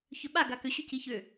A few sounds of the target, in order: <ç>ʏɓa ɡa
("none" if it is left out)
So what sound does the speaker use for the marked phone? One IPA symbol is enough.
ç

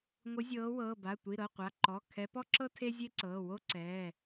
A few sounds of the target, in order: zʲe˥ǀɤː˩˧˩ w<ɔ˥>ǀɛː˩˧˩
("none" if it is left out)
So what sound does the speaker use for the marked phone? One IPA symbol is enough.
o˥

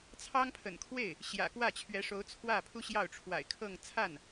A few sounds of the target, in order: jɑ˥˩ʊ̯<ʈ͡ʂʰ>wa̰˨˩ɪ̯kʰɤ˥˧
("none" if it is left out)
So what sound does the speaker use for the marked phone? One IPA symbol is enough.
ʈ͡ʂʰ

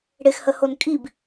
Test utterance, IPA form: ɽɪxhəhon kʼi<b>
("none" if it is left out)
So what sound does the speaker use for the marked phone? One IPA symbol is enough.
b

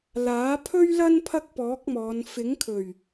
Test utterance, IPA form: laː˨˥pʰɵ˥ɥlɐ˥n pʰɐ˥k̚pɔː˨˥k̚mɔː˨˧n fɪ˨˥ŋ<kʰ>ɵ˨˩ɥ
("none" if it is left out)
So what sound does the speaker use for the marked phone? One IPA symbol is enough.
kʰ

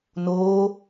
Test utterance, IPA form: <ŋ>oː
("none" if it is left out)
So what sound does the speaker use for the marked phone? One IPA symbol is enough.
n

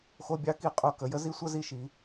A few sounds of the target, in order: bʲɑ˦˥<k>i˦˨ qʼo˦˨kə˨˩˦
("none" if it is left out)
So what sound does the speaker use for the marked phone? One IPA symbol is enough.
k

